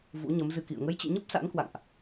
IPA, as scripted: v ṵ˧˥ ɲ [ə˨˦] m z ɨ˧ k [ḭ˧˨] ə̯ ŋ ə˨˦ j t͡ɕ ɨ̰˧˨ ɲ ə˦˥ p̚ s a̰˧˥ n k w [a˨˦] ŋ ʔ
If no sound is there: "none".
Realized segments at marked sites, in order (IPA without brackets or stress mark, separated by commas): ə˨˦, ḭ˧˨, a̰˧˨